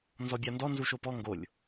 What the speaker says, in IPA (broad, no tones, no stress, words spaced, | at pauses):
nzɔbʲandɔ nzuʃopɔ ŋɡolʲ